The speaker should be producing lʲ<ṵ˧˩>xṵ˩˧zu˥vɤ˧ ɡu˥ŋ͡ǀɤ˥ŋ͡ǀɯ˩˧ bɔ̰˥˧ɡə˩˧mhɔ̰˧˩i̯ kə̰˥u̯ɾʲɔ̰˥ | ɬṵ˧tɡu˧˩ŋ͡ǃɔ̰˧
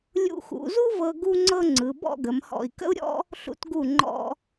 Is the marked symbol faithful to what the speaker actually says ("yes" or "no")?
no